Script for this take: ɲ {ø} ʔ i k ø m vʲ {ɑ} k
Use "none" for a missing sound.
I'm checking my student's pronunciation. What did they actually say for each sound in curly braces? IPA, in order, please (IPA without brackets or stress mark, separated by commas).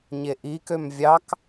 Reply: e, ɑ